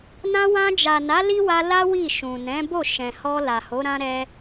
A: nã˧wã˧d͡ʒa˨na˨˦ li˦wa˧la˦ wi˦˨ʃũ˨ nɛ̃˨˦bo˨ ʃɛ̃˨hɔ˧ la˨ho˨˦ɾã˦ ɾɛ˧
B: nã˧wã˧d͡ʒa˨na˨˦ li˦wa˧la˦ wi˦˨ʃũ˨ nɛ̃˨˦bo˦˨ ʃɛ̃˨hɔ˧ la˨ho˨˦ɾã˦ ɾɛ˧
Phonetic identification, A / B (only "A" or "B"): B